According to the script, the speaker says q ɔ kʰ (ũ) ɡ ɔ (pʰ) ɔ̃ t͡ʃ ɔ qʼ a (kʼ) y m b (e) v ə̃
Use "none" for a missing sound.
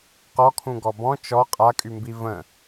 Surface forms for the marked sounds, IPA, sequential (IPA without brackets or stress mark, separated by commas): ũ, b, kʼ, i